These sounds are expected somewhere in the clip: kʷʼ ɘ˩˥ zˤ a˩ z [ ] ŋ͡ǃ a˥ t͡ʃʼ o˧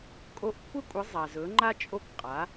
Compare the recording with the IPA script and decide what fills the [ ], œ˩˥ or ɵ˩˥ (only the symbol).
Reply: ɵ˩˥